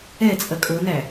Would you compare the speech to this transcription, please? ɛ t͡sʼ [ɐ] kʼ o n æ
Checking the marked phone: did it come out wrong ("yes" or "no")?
no